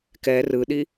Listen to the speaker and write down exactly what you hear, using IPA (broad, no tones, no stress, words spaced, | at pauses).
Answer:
kɛ rɯɗi